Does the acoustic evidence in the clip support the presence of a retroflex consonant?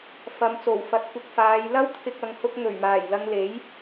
no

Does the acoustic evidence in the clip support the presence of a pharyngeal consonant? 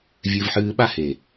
yes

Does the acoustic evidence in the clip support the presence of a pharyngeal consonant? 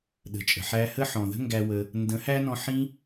yes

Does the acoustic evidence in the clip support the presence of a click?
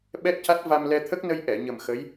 no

